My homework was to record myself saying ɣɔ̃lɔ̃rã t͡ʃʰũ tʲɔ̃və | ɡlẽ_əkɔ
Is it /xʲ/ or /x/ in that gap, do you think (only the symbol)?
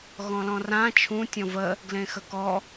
x